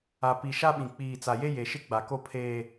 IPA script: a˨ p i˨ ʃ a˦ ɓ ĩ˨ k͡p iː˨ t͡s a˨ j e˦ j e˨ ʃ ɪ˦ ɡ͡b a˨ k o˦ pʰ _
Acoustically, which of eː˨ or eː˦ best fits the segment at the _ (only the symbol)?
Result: eː˦